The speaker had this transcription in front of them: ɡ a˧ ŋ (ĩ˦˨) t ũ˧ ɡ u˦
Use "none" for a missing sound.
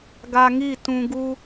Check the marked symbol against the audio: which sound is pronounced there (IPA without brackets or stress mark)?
i˦˨